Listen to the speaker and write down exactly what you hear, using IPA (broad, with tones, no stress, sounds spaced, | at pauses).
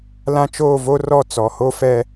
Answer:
l ã˦ t͡ʃ oː˦˨ v o˦ r ɔ˦˨ t͡s ɔ˨ h o˦ f ɛ˦